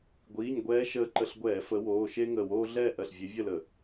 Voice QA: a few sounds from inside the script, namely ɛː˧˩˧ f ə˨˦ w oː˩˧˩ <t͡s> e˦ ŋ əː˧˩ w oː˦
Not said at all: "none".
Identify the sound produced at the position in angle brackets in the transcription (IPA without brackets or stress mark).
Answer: ʃ